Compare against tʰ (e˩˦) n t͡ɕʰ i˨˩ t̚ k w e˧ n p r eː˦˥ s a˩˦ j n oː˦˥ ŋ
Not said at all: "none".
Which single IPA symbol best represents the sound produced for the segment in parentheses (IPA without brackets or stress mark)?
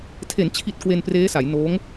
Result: e˩˦